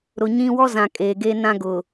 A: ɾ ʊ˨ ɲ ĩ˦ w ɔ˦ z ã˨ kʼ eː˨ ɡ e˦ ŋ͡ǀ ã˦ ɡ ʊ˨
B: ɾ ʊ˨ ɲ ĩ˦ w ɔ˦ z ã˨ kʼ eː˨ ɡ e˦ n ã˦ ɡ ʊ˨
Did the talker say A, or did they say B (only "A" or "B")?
B